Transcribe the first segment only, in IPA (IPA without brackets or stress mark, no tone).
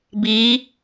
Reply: b